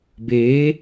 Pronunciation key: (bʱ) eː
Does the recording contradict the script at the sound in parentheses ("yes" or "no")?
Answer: yes